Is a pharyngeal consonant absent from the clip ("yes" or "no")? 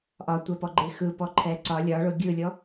yes